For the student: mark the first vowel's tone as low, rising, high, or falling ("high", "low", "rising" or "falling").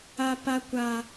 high